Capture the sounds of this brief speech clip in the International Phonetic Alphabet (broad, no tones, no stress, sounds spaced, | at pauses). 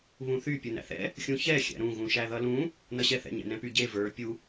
β ũ θ y pʲ u n æ̰ θ ɛ̰ | xʲ ũ ç ɛ xʲ æ̰ ɾ ũ ɣ ũ ʃ æ ð ʌ l ũ | n ʌ ɕ ɛ θ ɛ̰ ɲ ɛ̰ n ɛ̃ p y ɟ e v ə˞ pʲ u